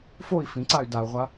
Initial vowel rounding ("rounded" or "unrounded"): rounded